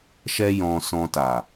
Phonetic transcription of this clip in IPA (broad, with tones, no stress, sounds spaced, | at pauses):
ʃ ɛ˦ j ɔ̃˧ s ɔ̃˧ t a˨